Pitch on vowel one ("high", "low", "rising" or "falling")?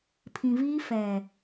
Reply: low